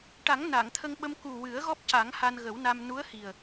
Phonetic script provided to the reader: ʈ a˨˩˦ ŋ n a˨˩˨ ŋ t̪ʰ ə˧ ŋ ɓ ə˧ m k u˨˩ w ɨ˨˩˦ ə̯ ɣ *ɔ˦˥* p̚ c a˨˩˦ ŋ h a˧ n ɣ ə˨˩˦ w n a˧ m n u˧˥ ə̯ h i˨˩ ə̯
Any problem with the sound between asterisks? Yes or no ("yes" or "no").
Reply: no